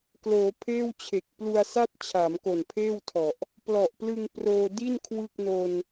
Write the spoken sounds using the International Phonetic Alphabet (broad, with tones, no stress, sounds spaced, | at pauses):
k l oː˩˦ pʰ eː˥˩ w t͡ɕʰ e˨˩ k̚ p l u˧ a̯ s a˥˩ t̚ t͡ɕʰ aː˩˦ m k o˨˩ n pʰ eː˥˩ w tʰ ɔ˨˩ ʔ | p l ɔ˨˩ ʔ p l ɯ˧ ŋ p r oː˧ d i˥˩ n kʰ w ɯ˥˩ k̚ n o˧ n